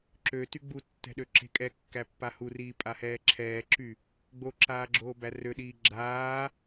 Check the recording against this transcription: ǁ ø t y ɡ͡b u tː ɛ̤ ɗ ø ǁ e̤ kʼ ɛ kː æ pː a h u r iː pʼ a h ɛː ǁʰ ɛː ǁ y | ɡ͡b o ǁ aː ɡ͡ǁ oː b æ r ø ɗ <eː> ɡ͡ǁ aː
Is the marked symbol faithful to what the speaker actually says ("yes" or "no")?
no